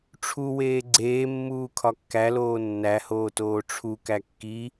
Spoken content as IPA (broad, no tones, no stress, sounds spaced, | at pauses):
ʈ͡ʂʰ u w eː ɡ͡ǀ eː mː uː kʰ ɒ kː æ l oː nː æ h oː t oː ʈ͡ʂʰ u k æ kː i